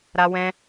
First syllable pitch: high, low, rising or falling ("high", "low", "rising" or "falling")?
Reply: high